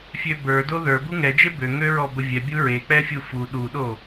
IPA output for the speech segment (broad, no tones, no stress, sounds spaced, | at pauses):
fʲ ø b ə˞ d o ð ə˞ b u ŋ ɛ d͡ʒ e b ø ŋ ø ɹ ɔ b ə vʲ ɛ bʲ u ɹ e k͡p ɛ fʲ u f u ɗ u ɗ o